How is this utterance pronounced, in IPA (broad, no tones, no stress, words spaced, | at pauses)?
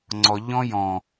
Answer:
ŋ͡ǀɔ ʎɔ̃jɔ̃